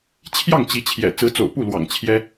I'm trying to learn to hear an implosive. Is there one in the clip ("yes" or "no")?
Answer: no